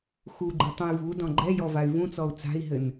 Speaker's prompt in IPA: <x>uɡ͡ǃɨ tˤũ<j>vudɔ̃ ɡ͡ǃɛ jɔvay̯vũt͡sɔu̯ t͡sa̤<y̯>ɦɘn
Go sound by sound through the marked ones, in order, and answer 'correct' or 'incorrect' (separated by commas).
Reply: correct, correct, incorrect